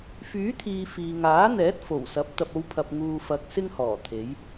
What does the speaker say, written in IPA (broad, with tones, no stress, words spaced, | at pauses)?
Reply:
fyː˨˥t̪ʰiː˨ fiː˨ŋaː˨˥n̪ɛː˨˥t̚ fo˨˩wsɐ˨˥p̚ t̪ɐ˨p̚o˧w pʰɐ˨p̚ŋuː˨fɐ˨k̚ sɪ˥ŋhɔː˨˩ t̪ʰe˨˥j